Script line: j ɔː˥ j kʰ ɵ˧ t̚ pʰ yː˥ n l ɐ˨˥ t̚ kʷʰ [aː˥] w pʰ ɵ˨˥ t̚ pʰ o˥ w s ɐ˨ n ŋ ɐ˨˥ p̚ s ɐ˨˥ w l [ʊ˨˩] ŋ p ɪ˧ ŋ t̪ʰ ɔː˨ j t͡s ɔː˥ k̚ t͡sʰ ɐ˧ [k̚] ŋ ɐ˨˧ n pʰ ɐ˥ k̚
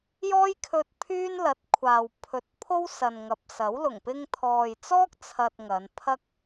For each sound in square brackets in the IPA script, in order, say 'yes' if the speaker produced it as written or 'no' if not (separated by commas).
no, yes, no